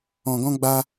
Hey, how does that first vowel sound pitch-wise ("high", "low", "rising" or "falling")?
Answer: low